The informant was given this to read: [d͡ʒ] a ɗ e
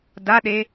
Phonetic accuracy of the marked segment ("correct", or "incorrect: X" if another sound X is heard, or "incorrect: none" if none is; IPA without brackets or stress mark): incorrect: d